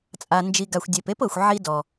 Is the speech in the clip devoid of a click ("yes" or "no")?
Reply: yes